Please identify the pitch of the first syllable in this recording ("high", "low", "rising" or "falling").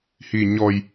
low